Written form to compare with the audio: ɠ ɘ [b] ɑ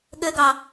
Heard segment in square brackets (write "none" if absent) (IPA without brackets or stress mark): ɡ